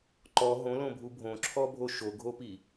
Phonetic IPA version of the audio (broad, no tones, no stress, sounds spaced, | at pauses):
ǃ ɔ ɦ õ l õ bʱ u bʱ õ ǁʰ ɔ bʱ o ʃ o ɡʱ o p i